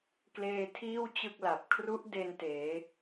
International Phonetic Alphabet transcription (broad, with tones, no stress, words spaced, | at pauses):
kleː˧tʰiː˥˩w t͡ɕɯ˥˩k̚la˨˩p̚ kʰru˦˥ʔ de˧n teː˩˦